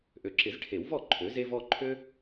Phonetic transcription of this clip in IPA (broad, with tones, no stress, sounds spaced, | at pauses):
ʔ ø˨ ǁ ɪ˨˩˦ z ʈʰ e˨˩˦ w v ɔ˥˩ ǃʰ ø˩˥ z e˦ v ɔ˦ ǃʰ ø˦